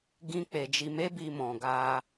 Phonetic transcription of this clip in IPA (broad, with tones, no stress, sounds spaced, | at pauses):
ɡ ĩ˧ k͡p e˨ d͡ʒ i˨ m e˧ b i˨ m ɔ̃˨ ɡ a˧